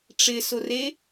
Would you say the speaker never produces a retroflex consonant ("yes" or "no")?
no